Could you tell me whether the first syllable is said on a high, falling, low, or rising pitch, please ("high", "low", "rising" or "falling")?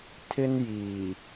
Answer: high